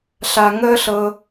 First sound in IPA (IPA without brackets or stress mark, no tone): ɬ